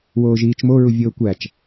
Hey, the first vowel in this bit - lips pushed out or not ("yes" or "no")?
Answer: yes